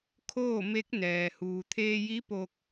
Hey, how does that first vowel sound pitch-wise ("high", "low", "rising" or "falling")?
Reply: falling